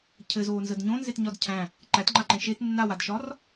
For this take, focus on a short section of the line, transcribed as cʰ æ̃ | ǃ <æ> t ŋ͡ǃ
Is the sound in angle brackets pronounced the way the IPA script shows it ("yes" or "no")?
yes